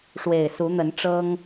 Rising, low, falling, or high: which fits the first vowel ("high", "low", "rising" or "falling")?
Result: low